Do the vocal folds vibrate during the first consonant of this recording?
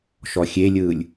no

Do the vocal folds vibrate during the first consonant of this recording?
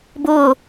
yes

